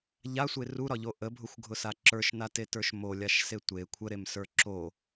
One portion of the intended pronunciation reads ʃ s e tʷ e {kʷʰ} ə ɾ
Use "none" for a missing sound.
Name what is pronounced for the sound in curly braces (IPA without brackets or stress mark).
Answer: kʷʰ